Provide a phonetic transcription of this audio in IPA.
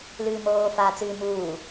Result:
l ɨː m oː f aː t͡s ɨː m uː

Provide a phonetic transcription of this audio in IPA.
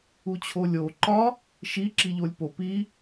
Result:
u t͡ɕʰ o lʲ o ǃ ɒ | ʃ i ǁ i ʎ o lʲ p o p i

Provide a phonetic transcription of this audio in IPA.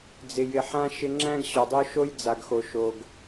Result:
d͡z ɪ˨ j ɪ˨ ħ ã˦ ʃ ɪ˦ ŋ͡ǁ æ̃˦ ɡ ɕ ɔ˨ dˤ o˦ ʃ o˦ j d͡z a˨ ɡ x o˨ ʃ o˨ ɡ

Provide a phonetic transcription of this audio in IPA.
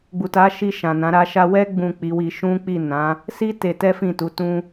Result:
ɡ͡b u˨ t a˨˦ ʃ i˧ ʃ ã˨ n ã˨˦ ɾ a˦ ʃ a˧ w ɛ˦ ɡ͡b ũ˦˨ k͡p i˨˦ w i˧ ʃ ũ˦ k͡p i˦˨ n ã˨˦ | s i˦ t e˧ t ɛ˦ f ĩ˦˨ t u˨˦ t ũ˦

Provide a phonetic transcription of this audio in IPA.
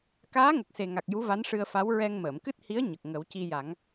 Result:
k aː˧˥ ŋ ə˨˩ k̚ s e˨˩ ŋ a˨˩ k̚ j u˧˥ v a˧˥ n ʂ ɨ˧ ə̯ f a˧˥ w ɹ ɛ˧ ŋ m əː˨˩˨ m k ɨ˦˥ t̚ h i˧˥ ə̯ ɲ ə˨˩ k̚ ŋ ə˨˩˦ w c i˧ j a˨˩˦ ŋ

